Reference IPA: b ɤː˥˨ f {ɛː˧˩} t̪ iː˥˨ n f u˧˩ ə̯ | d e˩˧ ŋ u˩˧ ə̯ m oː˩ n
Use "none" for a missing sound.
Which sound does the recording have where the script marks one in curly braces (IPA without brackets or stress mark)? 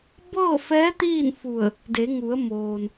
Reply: ɛː˧˥